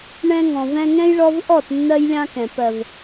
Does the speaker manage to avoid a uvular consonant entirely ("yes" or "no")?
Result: yes